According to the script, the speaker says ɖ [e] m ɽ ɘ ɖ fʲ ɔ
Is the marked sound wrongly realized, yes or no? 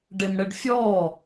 no